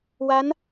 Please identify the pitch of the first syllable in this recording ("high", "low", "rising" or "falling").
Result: rising